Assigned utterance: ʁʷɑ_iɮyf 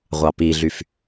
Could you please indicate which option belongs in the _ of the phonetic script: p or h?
p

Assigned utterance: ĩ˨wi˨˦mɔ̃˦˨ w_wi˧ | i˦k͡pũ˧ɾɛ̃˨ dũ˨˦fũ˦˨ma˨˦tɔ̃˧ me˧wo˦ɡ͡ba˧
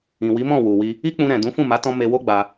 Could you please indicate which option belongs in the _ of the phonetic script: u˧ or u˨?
u˨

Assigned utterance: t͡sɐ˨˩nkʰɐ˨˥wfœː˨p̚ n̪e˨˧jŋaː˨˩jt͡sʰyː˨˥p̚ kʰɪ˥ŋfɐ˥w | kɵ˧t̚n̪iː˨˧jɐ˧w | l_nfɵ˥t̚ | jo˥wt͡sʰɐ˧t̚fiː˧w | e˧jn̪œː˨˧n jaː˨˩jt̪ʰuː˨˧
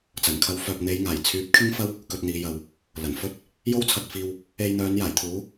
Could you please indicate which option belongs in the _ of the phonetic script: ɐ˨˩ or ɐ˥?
ɐ˨˩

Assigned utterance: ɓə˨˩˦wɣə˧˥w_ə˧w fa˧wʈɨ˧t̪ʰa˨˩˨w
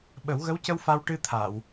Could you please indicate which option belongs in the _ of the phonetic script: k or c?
c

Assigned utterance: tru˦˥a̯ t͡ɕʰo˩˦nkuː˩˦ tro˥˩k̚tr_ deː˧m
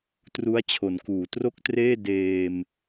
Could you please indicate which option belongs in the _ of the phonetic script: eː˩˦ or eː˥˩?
eː˥˩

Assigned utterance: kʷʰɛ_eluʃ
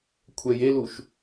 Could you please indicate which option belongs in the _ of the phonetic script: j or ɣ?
j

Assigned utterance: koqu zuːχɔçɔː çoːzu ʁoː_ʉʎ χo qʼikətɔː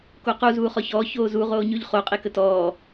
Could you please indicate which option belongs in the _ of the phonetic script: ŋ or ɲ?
ɲ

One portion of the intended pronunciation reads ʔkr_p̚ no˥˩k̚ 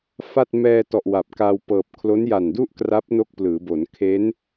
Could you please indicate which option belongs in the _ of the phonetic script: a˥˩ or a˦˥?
a˦˥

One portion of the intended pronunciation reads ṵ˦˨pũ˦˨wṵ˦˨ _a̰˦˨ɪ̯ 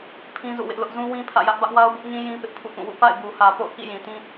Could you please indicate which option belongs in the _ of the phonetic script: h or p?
p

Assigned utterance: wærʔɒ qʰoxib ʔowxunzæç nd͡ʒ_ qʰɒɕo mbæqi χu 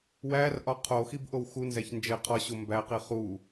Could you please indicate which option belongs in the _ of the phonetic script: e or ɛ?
e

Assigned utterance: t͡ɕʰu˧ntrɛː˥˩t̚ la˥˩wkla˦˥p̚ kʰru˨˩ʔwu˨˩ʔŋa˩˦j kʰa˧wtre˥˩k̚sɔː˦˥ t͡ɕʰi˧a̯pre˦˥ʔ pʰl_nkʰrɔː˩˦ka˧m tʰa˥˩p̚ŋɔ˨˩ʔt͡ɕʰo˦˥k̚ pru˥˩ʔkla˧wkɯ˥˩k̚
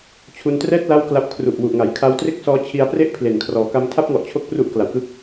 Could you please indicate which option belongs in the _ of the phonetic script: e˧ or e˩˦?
e˩˦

